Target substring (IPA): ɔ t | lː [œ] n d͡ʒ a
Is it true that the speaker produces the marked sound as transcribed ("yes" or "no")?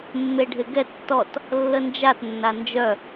no